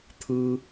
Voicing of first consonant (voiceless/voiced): voiceless